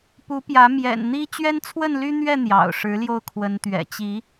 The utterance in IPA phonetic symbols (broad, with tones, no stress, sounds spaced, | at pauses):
p u˨˦ p j ä˨˦ m j ɛ̰˨˩ n n̪ i˦ t͡ɕ ɥ ɛ˦ n t͡sʰ w ə˥˨ n l y˦ n̪ ɥ ɛ˥˨ n̪ j ɑ̰˨˩ ʊ̯ ʂ ɻ̩˨˦ l j o˧ ʊ̯ kʰ w ə˨˦ n t̪ ɥ ɛ̰˨˩ t͡ɕ i˨˦